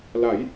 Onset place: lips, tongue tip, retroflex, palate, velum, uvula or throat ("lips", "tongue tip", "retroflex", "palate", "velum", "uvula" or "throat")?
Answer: tongue tip